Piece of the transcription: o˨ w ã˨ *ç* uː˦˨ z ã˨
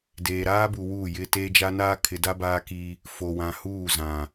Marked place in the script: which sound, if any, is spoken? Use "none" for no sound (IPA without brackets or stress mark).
h